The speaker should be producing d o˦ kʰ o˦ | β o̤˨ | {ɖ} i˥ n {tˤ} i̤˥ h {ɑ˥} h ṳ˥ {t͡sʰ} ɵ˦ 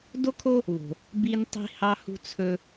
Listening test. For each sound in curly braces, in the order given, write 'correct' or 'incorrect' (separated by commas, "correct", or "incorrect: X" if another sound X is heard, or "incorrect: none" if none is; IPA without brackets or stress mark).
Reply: incorrect: b, correct, correct, correct